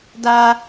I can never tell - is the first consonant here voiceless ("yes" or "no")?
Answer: no